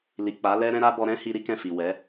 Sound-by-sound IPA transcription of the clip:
l i˨ k͡p a˨˦ l ɛ˦ ɾ ɛ̃˦ ɾ a˦ b ɔ˧ ɾ ɛ̃˦ h i˧ ɾ i˦ k ɛ̃˦˨ f i˨ w ɛ˨˦

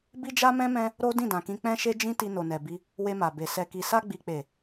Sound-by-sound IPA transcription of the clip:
b i˦ d͡ʒ a˦ m ɛ̃˦ m ɛ̃˦ | ɾ o˦ d ĩ˦˨ d ã˨ k ĩ˧ k͡p ɛ̃˦ ʃ e˦ d͡ʒ ĩ˦ t i˧ n o˨ n ɛ˨ b i˧ | w e˧ m a˨ b e˨ s ɛ˨ k i˨ s a˧ ɡ͡b i˨ k͡p e˨

